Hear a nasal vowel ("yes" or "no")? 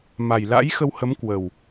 no